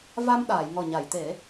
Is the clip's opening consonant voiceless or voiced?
voiced